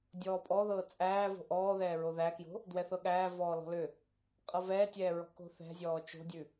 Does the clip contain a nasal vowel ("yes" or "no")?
no